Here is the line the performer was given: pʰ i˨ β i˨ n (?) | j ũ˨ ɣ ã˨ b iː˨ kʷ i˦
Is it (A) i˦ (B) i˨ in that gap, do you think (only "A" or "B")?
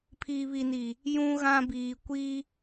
B